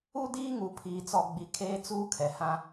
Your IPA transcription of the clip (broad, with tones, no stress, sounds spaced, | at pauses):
u˦ d iː˦ ŋ u˨ pʰ iː˨ t͡s ɔ˨ ɡ͡b i˨ kʰ eː˦ t͡s uː˦ kʰ ɛ˨ h ã˦